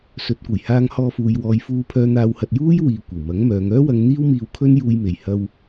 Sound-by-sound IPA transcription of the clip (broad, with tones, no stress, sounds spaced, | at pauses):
s ɵ˨˥ t̚ kʷ ɐ˨˩ j h aː˧ ŋ h ɔː˧ f uː˨ j w ɔː˨˧ j f uː˧ pʰ œː˧ n̪ aː˧ w h ɐ˧ t̚ j uː˥ j w iː˨ kʷ ɐ˨˩ w m ɐ˨˥ ŋ m œː˨˧ ŋ œː˥ w ɐ˧ ŋ n̪ iː˥ w m iː˧ w kʰ ɵ˥ n j uː˧ j m e˨ j h ɐ˧ w